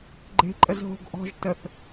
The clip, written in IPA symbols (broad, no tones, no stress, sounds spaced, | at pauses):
ɡ͡ǃ e̤ ǃʼ ə z ɦ o̤ ɡ ʔ ɔ̤ ʒ t ə θ